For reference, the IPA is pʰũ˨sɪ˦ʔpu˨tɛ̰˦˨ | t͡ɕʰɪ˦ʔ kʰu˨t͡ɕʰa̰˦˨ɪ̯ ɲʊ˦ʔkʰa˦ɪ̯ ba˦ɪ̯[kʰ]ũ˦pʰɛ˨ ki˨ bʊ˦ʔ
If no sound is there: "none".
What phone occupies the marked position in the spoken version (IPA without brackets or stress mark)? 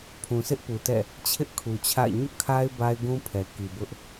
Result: ɡ